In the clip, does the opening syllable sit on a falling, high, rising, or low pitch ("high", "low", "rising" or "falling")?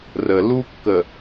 low